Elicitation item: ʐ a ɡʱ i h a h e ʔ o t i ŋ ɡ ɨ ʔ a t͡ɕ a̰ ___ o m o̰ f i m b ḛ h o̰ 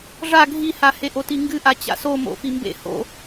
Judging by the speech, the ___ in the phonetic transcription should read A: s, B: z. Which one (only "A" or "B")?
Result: A